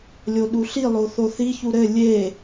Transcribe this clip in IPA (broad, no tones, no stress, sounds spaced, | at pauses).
lʲ o ɗ u ɬ i lˠ o θ o θ i ç u ɾ ɘ lʲ e